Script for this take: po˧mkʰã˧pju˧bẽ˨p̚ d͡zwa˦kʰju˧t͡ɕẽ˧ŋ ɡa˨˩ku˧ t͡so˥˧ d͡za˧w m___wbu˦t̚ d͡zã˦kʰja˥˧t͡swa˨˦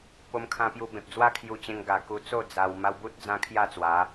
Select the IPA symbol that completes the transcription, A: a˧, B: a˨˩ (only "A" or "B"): A